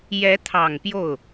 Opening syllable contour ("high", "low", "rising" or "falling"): rising